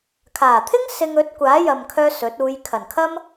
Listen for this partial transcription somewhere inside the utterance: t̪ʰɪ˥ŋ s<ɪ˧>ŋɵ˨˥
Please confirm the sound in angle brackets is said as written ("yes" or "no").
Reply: yes